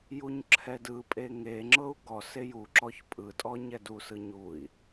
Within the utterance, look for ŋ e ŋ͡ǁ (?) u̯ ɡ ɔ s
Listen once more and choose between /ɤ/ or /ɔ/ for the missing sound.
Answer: ɤ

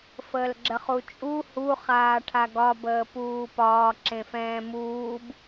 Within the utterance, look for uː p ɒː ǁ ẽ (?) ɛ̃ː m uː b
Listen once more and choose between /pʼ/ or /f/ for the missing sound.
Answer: f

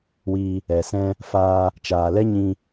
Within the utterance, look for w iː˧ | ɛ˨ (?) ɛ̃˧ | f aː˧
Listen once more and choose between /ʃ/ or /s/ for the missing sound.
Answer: s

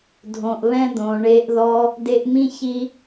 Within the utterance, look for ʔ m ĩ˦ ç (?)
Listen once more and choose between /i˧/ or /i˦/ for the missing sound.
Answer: i˦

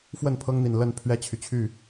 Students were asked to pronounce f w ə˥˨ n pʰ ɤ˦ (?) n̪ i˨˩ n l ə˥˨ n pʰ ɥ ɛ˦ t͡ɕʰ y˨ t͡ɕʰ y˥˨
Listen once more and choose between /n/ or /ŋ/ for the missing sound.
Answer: ŋ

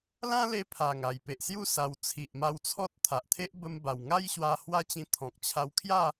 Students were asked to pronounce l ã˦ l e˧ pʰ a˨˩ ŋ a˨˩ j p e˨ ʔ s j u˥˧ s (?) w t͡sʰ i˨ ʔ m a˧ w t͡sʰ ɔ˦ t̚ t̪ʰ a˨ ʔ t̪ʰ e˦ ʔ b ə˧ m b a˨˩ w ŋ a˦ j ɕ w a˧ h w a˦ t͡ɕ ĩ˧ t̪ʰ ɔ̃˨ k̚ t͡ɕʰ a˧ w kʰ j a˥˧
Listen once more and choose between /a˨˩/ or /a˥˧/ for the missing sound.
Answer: a˨˩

